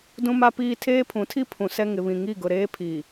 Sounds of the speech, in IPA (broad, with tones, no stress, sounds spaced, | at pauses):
d ũ˦ m a˦ p iː˦ tʰ eː˦ pʰ ũ˨˦ tʰ i˦ pʰ ũ˨ s ɛ˦ ŋ ɪ˨ β ĩ˨ ŋ i˦˨ ɡ ʊ˨ ɾ eː˦ pʰ iː˨